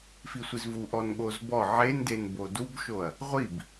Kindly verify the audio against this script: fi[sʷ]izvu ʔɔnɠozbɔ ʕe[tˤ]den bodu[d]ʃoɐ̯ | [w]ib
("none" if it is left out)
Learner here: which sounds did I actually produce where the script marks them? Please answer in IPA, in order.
sʷ, n, b, ʁʷ

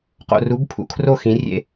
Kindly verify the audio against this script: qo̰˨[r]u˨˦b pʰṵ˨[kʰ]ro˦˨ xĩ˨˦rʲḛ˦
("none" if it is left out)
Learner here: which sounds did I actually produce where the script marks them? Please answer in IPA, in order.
r, kʰ

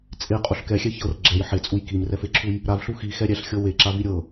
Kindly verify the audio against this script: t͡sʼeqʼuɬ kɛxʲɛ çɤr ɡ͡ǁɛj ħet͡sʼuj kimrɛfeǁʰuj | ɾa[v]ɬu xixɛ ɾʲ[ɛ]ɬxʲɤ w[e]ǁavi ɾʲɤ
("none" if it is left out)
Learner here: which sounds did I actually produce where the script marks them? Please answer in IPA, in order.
v, ɛ, e

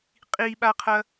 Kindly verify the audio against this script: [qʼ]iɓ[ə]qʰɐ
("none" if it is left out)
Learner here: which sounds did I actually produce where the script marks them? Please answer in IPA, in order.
qʼ, a

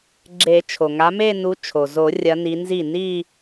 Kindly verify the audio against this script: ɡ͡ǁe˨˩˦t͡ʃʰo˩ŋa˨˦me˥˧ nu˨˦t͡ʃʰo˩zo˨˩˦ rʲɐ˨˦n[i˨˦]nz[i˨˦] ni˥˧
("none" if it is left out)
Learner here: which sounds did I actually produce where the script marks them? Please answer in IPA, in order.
i˨˦, i˥˩

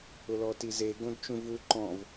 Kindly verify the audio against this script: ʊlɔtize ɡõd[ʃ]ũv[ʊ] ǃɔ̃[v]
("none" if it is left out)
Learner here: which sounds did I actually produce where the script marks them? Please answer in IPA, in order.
t͡ʃ, u, v

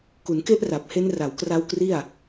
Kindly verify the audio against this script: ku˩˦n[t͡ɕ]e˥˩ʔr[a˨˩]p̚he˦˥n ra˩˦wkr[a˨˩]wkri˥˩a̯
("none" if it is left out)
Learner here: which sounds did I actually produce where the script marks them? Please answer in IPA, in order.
k, a˨˩, a˦˥

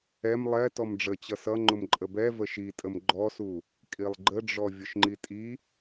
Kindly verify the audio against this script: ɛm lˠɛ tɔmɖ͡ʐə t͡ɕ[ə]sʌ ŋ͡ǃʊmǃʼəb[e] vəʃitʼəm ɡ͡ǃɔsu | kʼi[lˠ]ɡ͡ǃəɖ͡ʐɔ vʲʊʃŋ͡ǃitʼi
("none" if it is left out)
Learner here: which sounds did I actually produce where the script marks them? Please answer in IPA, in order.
ʌ, ɛ, lˠ

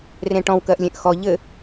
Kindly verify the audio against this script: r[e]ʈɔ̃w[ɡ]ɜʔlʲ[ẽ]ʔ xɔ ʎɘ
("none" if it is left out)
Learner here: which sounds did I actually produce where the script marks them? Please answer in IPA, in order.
ẽ, k, ẽ

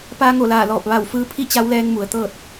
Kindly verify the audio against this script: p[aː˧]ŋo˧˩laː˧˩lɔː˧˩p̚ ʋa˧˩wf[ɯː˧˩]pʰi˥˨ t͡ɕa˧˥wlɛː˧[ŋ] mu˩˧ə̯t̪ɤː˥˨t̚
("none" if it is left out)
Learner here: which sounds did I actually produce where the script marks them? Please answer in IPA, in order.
aː˧, ɯː˧, ŋ

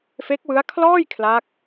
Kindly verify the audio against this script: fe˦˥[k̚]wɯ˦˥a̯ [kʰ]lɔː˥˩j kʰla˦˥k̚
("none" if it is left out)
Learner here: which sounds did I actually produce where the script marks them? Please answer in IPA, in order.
k̚, kʰ

